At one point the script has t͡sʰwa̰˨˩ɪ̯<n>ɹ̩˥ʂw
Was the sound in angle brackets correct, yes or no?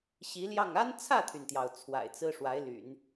no